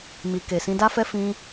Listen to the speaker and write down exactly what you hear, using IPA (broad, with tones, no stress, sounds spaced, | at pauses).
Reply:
m i˧ k e˨ s ĩ˧ d a˦ f ɛ˦ f ĩ˦